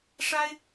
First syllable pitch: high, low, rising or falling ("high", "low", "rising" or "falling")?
high